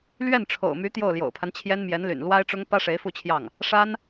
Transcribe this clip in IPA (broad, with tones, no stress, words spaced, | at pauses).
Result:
lɥɛ˥˩nʈ͡ʂʰo̰˨˩ʊ̯my˧˥ t̪jo˥˩ʊ̯ljo̰˨˩ʊ̯pʰa˦nt͡ɕʰjɛ˥n mjɛ˧˥nly̰˨˩nlwa˥ɪ̯ʈ͡ʂʊ˥ŋ pä˥ʂe˧˥ɪ̯fu˥˧t͡ɕʰjɑ˥˩ŋ | ʂa˥n